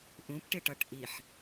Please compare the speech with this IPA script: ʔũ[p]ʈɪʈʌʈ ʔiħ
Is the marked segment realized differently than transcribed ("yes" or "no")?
no